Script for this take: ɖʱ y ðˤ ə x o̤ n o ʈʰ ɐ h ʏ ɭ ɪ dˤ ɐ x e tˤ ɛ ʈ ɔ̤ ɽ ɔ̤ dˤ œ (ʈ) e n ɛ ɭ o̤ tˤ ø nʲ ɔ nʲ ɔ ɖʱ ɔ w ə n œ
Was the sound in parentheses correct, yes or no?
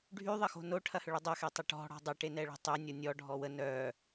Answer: yes